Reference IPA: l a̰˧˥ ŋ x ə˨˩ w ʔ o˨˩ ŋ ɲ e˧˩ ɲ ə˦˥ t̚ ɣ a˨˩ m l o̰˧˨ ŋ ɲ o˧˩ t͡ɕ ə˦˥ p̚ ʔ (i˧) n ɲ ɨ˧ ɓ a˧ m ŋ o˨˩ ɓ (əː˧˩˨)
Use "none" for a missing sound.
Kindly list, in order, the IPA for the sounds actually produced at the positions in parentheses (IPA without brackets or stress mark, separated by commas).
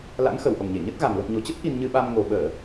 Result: i˧, əː˧˩˨